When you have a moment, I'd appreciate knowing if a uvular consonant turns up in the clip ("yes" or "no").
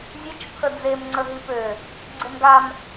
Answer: no